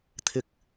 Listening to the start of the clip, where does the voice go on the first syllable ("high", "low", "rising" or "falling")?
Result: low